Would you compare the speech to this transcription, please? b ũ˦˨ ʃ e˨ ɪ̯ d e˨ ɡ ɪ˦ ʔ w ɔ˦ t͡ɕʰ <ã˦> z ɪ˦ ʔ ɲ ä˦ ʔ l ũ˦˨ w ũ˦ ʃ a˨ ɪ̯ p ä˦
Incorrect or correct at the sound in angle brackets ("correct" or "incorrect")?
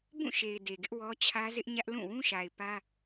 incorrect